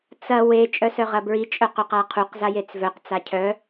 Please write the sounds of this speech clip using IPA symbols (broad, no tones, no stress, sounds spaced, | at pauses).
t͡s ɐ w e t͡ʃʼ œ s œ ʁ ɐ b ɹ i t͡ʃʼ œ q ɵ q a qʰ u q z a j e t͡s v œ q t͡s a cʰ œ